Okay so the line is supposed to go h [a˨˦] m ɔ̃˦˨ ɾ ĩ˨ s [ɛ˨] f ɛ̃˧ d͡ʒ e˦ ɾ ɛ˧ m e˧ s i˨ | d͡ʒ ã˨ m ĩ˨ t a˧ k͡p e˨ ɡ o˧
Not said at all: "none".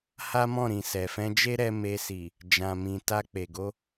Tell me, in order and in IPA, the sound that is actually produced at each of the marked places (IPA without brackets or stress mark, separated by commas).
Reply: a˦, ɛ˨